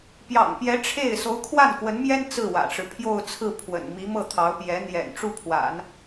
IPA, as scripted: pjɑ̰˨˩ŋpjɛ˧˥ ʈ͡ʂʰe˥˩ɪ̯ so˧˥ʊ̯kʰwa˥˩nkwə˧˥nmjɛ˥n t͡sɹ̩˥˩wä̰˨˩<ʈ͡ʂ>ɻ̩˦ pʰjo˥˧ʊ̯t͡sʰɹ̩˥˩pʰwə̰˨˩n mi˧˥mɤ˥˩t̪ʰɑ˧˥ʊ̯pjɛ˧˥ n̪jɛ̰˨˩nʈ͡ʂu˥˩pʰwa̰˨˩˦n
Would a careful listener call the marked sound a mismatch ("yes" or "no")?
no